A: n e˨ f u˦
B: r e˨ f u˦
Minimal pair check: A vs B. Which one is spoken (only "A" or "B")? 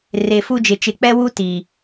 B